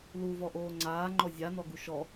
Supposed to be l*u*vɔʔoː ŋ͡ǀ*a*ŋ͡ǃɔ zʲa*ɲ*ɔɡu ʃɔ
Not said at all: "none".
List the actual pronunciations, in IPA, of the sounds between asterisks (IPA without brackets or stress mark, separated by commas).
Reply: u, aː, n